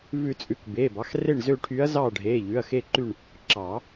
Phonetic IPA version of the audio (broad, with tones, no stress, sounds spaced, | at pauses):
v ʉ˨˩˦ t͡sʼ ʉ˩˧˩ k b eː˩˧˩ b ɑ˩˧˩ x r e˦˨ ɳ z ø˦˨ ʈʰ y˧˥ ɐ̯ z ɑː˦˨ ɖʱ eː˩˧˩ ʎ ʉ˩˧˩ ɐ̯ x e˦˨ ǃ y˦˨ ɳ | ǁ ɑː˨˩˦